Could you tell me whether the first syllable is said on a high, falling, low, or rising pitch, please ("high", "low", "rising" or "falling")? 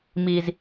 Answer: low